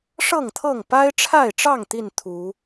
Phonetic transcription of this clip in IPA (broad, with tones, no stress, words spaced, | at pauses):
ʂɤ˥˨ŋt̪ʰɤ˥˨ŋ pa˦ɪ̯ʈ͡ʂʰa˥˨ɪ̯ʈ͡ʂɑ˥˨ŋ t̪i˥˨n t̪ʰu˨˦